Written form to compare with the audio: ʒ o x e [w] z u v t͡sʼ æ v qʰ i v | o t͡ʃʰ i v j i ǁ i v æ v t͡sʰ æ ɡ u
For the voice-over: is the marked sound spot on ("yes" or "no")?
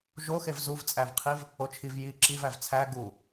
no